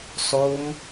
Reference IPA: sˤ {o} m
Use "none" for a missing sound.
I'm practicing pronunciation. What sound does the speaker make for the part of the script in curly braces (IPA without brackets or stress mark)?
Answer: o